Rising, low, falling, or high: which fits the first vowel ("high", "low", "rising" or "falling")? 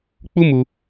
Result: high